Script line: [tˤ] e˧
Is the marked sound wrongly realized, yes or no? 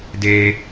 yes